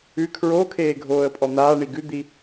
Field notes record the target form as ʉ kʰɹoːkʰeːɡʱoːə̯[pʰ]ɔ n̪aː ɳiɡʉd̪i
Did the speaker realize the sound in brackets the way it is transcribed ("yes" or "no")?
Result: no